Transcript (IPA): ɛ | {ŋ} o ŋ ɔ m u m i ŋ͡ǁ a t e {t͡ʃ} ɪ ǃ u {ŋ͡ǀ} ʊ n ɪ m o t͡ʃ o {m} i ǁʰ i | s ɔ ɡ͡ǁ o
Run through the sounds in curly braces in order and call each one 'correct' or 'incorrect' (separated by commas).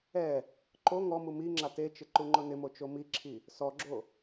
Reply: incorrect, correct, incorrect, correct